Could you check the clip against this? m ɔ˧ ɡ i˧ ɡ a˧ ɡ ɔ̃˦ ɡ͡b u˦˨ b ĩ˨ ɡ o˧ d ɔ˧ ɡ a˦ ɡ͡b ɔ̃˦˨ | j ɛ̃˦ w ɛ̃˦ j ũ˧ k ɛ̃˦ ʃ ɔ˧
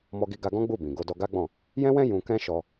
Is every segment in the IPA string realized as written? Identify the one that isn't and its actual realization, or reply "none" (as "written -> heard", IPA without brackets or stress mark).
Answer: none